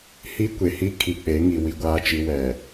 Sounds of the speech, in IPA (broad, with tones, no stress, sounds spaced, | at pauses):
h i˦ kʷ e˨ h i˦ kʰ i˨ k͡p e˨˦ ŋ i˨ w i˦ ɡʷ aː˦ t͡ʃ i˦ w ɛ˨